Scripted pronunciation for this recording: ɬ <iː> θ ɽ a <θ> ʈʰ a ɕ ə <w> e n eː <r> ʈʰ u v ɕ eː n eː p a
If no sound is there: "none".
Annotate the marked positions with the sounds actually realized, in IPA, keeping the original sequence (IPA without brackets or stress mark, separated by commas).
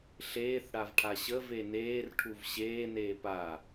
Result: eː, v, v, r